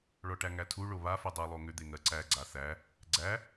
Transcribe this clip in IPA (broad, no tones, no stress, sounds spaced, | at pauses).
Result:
ɭ ɔ ʈ æ ŋ æ tʰ u ɭ o β a f u dˤ ɜ lˠ o ŋ ʏ d̪ e ŋ ɜ ǀ æ ɡ͡ǀ a θ æ | ɡ͡ǀ æ